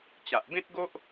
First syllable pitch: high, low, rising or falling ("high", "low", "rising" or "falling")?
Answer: low